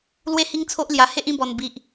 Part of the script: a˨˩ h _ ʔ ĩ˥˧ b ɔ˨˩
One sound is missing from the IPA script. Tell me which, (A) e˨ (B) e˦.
B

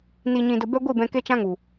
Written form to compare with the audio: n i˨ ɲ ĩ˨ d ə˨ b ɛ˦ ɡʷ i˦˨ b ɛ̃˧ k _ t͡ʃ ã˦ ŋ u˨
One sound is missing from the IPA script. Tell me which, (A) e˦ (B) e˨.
A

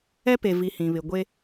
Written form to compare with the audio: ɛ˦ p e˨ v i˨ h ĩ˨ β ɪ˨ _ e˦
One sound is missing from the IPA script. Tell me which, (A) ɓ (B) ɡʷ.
B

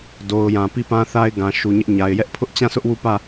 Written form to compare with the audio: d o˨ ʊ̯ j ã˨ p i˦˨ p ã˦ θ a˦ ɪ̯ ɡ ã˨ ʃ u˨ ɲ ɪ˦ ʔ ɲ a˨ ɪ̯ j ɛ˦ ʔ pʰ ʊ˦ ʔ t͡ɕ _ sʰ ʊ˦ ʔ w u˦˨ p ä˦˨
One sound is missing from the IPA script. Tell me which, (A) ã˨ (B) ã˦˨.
B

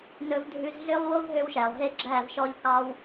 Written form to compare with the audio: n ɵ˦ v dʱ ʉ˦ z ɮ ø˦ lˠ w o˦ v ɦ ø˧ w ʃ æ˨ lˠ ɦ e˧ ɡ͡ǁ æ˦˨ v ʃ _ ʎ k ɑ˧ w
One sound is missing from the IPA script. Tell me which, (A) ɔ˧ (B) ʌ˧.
A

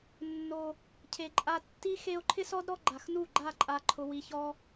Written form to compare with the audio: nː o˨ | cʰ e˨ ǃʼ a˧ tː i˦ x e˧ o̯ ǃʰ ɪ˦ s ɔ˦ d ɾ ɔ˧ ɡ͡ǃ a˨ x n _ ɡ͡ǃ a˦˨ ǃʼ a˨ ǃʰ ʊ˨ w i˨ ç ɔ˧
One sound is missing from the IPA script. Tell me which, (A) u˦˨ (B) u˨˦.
A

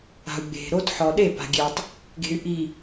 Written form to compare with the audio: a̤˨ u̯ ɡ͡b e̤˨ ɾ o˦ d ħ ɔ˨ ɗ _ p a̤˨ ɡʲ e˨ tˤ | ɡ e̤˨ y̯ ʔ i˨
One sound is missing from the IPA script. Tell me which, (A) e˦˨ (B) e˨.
A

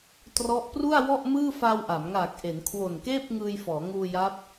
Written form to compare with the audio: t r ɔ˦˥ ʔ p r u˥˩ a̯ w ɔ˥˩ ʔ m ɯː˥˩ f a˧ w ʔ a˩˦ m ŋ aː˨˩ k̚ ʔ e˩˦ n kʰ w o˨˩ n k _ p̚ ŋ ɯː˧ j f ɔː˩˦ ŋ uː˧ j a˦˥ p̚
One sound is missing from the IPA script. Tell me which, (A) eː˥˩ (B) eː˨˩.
A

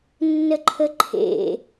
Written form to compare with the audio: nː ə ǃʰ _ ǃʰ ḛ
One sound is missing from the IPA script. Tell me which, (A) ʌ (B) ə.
B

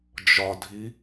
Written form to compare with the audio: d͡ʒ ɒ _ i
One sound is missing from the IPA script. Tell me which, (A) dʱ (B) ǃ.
A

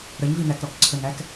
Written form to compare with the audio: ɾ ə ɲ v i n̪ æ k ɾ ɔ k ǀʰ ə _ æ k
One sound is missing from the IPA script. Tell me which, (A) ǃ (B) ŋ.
B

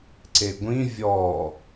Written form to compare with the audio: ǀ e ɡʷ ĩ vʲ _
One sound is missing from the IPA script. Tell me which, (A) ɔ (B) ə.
A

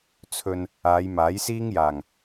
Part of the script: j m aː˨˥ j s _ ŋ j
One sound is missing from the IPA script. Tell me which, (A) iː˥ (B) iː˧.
A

